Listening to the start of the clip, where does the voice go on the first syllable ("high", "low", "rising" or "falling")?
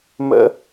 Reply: high